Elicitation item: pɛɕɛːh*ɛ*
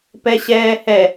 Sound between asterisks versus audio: correct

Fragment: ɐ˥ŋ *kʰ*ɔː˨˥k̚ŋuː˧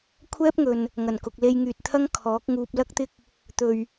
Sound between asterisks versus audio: correct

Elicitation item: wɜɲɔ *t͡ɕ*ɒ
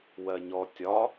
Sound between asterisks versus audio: incorrect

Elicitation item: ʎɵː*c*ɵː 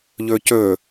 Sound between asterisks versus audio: correct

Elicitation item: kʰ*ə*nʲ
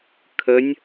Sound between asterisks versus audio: correct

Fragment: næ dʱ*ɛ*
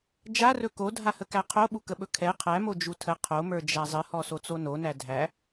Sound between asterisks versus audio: incorrect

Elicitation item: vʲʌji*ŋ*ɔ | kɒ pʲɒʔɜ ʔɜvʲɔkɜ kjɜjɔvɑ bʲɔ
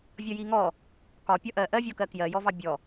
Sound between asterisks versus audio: correct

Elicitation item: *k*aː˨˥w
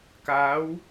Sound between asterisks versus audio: correct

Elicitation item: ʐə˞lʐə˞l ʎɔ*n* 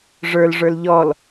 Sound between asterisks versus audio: incorrect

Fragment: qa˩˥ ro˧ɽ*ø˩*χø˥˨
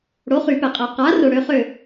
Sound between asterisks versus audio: incorrect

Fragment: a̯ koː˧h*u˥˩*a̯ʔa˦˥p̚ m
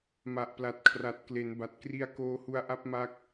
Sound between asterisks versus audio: incorrect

